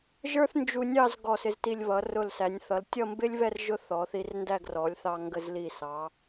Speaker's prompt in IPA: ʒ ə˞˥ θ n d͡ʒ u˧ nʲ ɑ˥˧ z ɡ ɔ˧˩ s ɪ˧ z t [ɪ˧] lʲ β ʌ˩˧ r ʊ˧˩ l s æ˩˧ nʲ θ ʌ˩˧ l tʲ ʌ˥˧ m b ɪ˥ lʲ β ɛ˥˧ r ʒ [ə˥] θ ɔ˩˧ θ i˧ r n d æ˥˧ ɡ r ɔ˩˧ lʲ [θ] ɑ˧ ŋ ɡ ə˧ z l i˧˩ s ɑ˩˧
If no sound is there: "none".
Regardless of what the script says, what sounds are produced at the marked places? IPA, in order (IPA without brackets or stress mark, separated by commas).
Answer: i˧, ʊ˥, θ